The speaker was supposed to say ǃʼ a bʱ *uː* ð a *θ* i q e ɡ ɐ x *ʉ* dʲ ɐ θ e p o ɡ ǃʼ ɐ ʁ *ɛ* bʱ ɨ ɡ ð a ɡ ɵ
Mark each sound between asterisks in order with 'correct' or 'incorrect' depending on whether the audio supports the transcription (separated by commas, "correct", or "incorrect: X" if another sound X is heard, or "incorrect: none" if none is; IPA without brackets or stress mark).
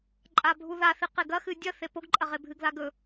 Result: incorrect: u, correct, incorrect: ɨ, incorrect: e